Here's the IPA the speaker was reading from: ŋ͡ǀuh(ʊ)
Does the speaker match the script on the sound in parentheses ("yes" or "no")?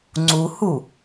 no